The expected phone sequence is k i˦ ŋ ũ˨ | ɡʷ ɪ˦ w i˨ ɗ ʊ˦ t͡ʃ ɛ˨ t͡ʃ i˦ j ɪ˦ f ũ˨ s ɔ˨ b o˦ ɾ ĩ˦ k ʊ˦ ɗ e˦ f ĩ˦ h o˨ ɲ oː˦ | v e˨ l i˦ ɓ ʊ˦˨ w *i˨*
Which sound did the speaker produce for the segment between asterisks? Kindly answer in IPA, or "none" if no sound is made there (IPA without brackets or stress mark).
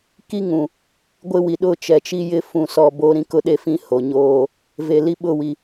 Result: i˨